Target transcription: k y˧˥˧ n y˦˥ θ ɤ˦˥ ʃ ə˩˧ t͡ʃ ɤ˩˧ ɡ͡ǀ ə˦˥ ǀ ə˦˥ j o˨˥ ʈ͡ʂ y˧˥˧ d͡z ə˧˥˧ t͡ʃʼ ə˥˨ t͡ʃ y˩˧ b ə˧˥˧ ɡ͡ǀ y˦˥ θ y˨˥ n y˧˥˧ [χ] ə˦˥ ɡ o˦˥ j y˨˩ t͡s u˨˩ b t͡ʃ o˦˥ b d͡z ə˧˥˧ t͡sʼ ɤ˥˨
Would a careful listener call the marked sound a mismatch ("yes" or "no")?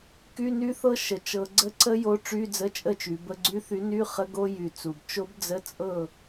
no